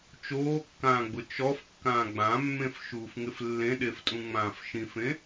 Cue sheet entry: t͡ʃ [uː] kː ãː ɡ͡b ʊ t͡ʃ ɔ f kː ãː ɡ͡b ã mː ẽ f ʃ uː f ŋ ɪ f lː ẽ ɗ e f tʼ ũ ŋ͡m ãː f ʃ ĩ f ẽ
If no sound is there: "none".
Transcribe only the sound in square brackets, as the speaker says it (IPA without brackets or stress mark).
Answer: oː